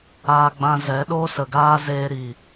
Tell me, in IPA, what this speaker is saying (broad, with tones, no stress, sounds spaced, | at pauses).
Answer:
aː˧ ɡ͡b ã˧ z ɛ˨˦ ɗ oː˦ s ə˨ ɡ aː˦ z eː˧ ɾ i˨